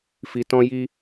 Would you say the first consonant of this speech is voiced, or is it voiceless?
voiceless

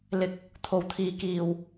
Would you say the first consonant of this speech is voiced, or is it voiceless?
voiced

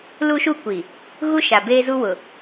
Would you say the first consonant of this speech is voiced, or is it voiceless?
voiced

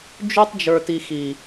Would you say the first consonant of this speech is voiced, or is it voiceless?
voiced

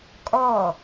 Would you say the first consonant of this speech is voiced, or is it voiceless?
voiceless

